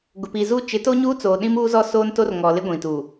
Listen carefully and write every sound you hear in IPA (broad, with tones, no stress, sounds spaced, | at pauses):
ɡ ʊ˨ p iː˨ z uː˦ t͡ʃ ɪ˨˦ t o˦ ɲ uː˦ t͡s oː˨ ɗ ĩ˦ m uː˦ z ɔ˦ s oː˦ n t o˦ r ŋ ɔ˨ l ɪ˦ ɡʷ ĩ˨ t u˨